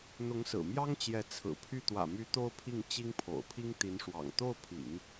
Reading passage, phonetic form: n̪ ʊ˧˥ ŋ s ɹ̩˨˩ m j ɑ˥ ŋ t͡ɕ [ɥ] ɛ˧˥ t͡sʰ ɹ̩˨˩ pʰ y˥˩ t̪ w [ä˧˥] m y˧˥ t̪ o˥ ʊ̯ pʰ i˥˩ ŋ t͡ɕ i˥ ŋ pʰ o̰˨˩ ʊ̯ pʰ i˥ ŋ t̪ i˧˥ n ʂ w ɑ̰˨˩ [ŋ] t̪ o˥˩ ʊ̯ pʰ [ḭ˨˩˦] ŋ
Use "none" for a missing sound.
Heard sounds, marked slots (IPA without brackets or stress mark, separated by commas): j, ä̰˨˩, ŋ, ḭ˨˩˦